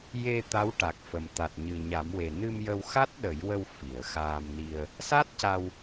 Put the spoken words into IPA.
je˧ t̪a˧˥wʈa˨˩k̚fə˨˩m t̪a˨˩t̚ɲɨ˨˩ ɲa˨˩˦mwe˨˩ nɨ˧m jə˧wxa˦˥t̚ɗə˨˩˦jwə˧w fi˨˩˨ə̯xaː˧mni˧ə̯ | sa˦˥t̚ca˧w

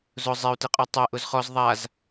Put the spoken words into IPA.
zʊ zˤeu̯tɛqʼɔ tˤɛ ʔʊzχɔz ðˤaz

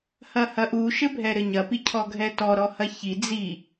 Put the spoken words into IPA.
hɐhɐʔu ʃɘbʱɛɾɘɲɐ picʰɔɡʱɛtɔ ɾɔhɐçi d͡zi

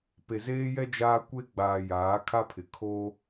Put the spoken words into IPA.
pe˨zeː˦jɛ˦ d͡ʒaː˦ kʷe˦ɡ͡baː˨ jaː˨˦kʰa˦pʰɪ˨ kʰo˦

